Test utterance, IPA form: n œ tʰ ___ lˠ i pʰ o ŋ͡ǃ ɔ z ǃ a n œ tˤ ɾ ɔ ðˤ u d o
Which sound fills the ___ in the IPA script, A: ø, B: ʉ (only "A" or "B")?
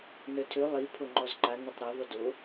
A